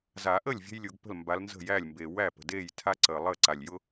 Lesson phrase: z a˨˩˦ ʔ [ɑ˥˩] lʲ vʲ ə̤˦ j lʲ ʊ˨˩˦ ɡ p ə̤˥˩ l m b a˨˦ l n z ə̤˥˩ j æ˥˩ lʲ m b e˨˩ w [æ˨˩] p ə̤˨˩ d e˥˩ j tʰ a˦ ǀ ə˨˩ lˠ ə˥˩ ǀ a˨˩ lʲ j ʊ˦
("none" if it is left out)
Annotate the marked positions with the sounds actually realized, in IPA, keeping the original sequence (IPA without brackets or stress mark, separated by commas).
ə˥˩, æ˥˩